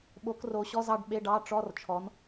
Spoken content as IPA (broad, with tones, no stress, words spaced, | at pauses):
ɓo˨˦k ro˨˦ɕɔ˧˥˧zɑ˨˦ɖ ɓe˧˥˧ɖɑ˧˥˧ ʈ͡ʂɔ˧˥˧rt͡ʃʰɔ˨˦n